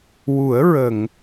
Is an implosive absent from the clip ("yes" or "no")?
yes